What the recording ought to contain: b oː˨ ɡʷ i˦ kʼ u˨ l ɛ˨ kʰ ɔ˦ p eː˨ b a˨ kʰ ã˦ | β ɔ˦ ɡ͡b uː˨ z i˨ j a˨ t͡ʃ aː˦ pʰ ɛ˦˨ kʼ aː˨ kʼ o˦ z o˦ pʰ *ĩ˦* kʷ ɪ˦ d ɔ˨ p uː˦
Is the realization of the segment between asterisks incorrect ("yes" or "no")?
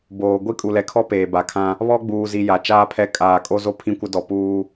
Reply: no